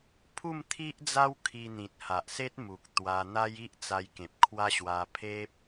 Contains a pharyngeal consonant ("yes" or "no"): no